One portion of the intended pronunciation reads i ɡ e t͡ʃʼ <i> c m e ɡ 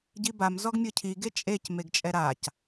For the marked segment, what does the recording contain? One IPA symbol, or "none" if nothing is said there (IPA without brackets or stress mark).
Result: e